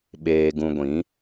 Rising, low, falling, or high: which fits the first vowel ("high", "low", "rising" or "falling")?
low